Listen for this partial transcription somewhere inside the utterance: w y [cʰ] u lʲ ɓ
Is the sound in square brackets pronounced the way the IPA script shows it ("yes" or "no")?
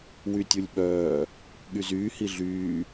no